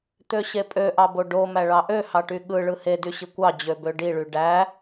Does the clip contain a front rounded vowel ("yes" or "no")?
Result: yes